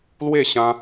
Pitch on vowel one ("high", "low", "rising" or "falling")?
falling